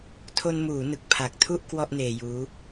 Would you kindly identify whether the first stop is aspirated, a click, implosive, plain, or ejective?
aspirated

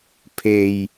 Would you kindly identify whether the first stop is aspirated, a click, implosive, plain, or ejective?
aspirated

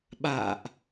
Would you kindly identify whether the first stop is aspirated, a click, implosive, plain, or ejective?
implosive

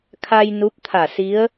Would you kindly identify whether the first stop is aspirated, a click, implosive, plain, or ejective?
aspirated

